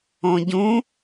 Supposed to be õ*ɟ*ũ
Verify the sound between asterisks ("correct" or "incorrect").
correct